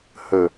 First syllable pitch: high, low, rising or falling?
low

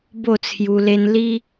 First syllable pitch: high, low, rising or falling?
falling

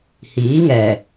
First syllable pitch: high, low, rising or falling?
rising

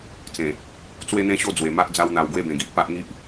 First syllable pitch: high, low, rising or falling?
low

